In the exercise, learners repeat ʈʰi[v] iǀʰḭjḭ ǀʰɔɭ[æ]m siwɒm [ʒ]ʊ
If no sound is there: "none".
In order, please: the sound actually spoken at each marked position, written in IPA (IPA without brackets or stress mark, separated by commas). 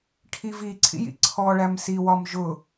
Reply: v, æ, ʒ